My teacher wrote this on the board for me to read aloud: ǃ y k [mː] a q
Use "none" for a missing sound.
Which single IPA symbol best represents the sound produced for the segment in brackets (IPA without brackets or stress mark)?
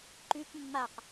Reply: mː